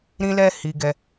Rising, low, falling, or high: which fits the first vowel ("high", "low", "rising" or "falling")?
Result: high